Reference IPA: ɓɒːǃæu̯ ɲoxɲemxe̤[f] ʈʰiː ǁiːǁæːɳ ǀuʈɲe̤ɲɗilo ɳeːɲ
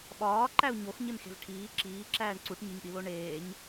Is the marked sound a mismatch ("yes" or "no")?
yes